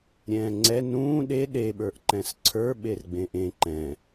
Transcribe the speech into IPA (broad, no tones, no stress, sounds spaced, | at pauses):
ɾʲ ɛ̃ː ŋ͡ǀ ɛ n ũː ɗ e ɗ e ɓ ə˞ ʔ ǃ ɛ̃ s ǀʰ ə˞ ɓ e r ɡ͡b ẽ ʔ ẽ ǃ ɛ̃